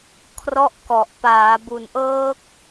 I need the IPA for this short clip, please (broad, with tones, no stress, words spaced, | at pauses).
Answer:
kʰrɔ˥˩ʔkɔ˨˩ʔ paː˩˦bu˨˩nʔɤː˦˥k̚